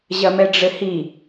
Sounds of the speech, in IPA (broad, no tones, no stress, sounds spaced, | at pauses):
ʑ ɐ m ɛ ɖ͡ʐ ɘ h i